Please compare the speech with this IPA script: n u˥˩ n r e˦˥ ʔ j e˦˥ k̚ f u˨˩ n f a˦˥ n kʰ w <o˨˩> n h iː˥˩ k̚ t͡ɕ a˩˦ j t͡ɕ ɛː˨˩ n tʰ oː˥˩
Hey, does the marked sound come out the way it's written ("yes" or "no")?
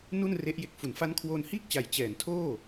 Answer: no